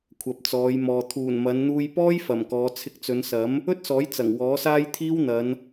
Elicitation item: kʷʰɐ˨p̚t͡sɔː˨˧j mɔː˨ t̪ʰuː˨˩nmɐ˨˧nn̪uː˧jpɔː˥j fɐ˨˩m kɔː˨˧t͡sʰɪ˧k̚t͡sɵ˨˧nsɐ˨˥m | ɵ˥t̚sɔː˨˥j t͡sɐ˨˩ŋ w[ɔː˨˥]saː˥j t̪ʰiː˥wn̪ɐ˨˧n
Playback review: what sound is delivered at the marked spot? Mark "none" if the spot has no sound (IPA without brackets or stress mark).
ɔː˨˥